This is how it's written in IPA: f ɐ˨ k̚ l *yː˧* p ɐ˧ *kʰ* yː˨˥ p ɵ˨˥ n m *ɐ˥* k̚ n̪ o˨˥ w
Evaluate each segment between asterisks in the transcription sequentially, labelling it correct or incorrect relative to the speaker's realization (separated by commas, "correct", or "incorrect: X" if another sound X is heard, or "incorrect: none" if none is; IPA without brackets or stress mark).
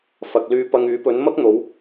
correct, incorrect: ŋ, correct